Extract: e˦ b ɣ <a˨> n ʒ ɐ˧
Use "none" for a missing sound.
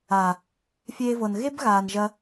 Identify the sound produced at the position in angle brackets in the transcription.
aː˨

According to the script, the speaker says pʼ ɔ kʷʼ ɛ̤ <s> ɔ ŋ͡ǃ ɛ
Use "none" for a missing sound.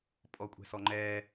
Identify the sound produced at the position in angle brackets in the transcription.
s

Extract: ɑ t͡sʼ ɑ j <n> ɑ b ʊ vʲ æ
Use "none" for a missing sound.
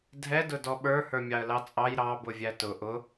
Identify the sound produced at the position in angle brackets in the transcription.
ɾ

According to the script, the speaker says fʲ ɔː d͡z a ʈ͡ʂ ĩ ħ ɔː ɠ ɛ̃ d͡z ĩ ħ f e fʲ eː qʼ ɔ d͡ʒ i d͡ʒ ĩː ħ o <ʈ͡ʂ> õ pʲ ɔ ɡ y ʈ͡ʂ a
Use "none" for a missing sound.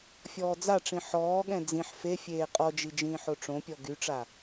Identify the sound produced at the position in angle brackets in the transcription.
ʈ͡ʂ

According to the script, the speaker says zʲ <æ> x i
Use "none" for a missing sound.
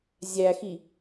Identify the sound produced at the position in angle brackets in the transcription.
æ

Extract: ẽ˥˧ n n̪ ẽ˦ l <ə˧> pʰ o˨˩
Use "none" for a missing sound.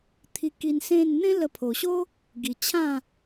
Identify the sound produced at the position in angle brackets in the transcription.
ə˧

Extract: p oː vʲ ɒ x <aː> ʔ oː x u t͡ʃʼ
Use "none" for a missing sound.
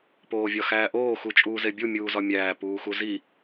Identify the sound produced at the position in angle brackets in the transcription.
æː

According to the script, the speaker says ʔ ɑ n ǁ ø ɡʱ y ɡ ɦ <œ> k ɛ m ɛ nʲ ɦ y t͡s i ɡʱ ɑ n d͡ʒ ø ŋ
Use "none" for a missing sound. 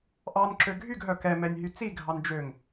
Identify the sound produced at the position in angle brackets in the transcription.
œ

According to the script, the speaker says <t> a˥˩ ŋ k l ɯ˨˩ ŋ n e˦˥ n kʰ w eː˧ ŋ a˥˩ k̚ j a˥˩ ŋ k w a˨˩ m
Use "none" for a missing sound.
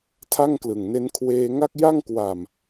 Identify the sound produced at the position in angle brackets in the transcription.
tʰ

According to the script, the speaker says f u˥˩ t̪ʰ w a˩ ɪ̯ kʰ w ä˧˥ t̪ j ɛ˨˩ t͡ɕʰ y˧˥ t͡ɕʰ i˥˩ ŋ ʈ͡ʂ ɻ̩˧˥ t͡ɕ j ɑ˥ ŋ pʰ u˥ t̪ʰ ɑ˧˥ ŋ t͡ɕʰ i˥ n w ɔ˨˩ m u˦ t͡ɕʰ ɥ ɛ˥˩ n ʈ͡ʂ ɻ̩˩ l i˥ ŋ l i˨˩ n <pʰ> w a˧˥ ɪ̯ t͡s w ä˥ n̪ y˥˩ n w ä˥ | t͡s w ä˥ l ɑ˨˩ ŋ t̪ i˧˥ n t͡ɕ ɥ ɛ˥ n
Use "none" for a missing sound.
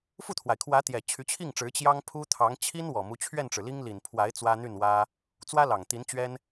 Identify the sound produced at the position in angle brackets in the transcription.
pʰ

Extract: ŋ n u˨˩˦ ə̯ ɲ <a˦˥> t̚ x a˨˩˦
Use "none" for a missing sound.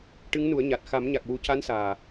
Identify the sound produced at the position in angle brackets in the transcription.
a˨˩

